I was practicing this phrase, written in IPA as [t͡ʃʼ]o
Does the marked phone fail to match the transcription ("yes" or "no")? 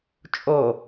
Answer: no